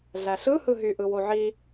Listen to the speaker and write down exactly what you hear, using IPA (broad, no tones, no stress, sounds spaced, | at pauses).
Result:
ɮ æ ɬ ɯ h ɯ ɦ y ʔ ɯ w o ʕ i